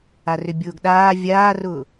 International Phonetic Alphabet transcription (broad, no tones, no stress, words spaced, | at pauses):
arʏbʲʊːɡɗaː vʲaːrʊː